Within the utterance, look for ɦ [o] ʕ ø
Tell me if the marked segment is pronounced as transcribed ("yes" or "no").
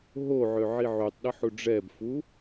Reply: yes